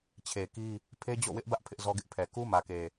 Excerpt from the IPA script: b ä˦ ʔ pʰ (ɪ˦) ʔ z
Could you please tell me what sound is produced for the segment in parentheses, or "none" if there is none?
ɪ˦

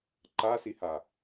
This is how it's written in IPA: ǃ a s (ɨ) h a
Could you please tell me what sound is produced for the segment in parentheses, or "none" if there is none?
i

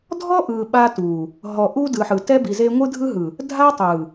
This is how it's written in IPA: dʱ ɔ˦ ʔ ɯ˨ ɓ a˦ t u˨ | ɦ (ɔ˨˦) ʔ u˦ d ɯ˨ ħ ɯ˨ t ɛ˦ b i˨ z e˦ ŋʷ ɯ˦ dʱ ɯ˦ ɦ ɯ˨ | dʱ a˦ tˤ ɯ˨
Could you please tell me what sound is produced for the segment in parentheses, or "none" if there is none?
ɔ˨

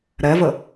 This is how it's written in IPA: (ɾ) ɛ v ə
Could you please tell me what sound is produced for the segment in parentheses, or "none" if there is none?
ɾ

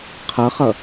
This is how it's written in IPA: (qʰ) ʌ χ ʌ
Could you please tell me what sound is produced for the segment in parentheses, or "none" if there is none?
qʰ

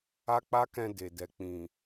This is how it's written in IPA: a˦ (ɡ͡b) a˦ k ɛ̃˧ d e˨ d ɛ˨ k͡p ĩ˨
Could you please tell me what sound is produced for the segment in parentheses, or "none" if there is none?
k͡p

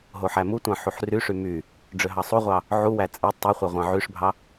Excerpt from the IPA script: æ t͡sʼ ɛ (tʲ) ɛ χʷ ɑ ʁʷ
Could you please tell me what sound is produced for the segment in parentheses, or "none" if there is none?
tˤ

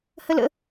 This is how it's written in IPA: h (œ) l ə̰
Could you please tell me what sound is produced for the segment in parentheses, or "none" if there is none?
ə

